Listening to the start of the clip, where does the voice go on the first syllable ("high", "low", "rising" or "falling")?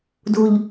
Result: low